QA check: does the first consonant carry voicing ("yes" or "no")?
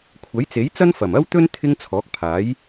no